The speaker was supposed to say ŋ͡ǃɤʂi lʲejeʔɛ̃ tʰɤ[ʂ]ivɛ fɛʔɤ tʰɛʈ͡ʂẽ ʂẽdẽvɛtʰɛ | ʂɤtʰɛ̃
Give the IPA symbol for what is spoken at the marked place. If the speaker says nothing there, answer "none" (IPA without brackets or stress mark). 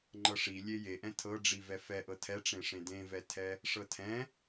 ɖ͡ʐ